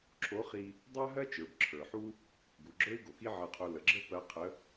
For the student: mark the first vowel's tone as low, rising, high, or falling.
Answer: rising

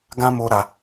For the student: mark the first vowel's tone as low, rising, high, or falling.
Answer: high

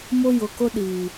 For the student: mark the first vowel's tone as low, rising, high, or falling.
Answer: high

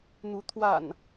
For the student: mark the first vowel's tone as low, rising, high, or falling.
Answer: rising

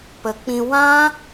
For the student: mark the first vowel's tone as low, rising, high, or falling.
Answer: low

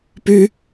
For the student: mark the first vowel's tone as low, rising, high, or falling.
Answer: high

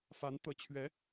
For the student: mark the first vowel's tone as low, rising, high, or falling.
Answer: rising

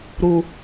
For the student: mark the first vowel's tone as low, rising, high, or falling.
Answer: low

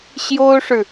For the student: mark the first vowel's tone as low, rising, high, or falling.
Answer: high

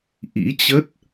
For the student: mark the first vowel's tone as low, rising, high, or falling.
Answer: rising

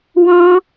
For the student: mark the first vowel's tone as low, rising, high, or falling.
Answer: high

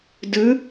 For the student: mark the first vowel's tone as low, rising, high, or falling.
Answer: rising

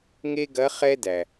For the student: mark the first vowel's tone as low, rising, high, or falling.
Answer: high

